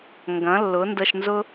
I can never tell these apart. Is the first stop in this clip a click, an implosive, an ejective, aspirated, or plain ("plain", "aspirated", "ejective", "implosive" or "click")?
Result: plain